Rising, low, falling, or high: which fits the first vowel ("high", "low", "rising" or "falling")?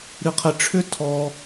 high